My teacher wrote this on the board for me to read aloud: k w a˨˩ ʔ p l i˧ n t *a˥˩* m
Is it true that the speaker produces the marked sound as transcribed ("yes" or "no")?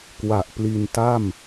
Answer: yes